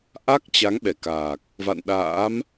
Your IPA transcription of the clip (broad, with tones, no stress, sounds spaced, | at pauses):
ʔ a˦˥ k̚ t͡ɕ a˨˦ ŋ ɓ ɛ˧˩ k aː˨˩ k̚ | v a̰˧˨ n ɗ a̰ː˧˥ m